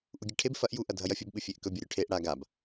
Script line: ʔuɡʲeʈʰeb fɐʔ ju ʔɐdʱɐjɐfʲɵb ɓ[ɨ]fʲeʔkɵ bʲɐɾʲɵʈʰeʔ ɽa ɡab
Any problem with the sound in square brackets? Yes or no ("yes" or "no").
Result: no